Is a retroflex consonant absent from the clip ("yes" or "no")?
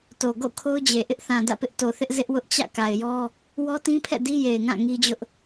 yes